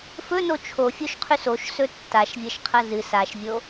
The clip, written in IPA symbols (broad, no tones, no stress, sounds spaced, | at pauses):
f ɵ n o t͡ʃʰ o fʲ o ʃ qʰ ʉ s o ʃ s ɵ tː a ʃ vʲ ɐ ʃ qʰ ɐ z ɨ s a ʃ vʲ o